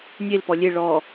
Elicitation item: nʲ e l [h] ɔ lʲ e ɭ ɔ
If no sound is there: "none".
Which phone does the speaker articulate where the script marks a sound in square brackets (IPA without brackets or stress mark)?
p